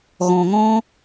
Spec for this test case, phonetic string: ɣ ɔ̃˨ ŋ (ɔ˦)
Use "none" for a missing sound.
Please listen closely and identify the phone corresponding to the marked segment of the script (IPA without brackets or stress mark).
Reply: ɔ̃˦